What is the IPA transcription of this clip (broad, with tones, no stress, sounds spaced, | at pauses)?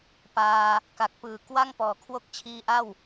p aː˧ | k a˨˩ k̚ p ɯː˨˩ k w a˥˩ ŋ p ɔː˨˩ kʰ w o˥˩ k̚ t͡ɕʰ iː˧ ʔ a˥˩ w